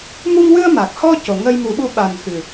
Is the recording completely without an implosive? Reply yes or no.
no